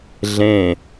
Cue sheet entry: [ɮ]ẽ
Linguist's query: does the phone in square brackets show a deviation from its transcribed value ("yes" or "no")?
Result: no